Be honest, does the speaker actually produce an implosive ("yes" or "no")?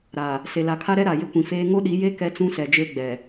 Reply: yes